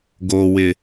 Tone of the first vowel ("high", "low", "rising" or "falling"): low